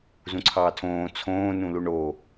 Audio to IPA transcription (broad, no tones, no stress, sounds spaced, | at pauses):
z ũ ǀʰ ɑː tʰ õː t͡sʰ õː n ũ l u ɳ o